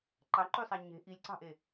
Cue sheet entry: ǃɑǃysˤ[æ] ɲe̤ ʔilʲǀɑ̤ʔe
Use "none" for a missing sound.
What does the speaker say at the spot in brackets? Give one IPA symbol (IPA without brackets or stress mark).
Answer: æ